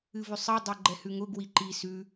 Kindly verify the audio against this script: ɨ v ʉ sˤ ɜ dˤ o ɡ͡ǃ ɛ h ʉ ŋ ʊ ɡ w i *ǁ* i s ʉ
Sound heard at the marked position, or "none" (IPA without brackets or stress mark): ǃ